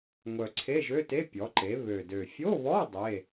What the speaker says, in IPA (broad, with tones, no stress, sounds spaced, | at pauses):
ŋʷ œ˨˩ ǀʰ e˧˥˧ ʒ ø˧˥˧ t e˧˥˧ pʲ ɔ˨˥ ǃ e˨˥ β ø˨˩ d ø˨˩ fʲ o˧˥˧ β ɔ˧˥˧ dˤ e˧˥˧